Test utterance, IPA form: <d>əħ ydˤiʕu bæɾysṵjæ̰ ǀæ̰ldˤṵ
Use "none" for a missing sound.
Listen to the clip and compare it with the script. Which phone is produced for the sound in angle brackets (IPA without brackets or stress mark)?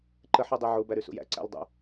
ǃ